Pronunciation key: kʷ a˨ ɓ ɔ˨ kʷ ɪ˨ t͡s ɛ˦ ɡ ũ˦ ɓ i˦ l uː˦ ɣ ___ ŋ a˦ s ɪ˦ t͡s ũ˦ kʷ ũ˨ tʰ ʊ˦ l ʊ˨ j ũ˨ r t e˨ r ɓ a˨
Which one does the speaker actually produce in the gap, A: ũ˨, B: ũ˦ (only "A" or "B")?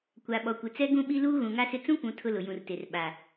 A